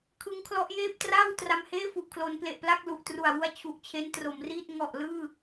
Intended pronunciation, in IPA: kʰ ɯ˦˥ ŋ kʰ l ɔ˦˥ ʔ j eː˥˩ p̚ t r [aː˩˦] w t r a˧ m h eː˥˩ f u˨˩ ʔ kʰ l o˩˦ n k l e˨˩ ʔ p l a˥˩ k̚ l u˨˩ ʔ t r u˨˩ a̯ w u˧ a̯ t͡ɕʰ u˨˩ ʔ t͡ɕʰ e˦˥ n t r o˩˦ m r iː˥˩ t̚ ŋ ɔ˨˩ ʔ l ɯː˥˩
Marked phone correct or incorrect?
incorrect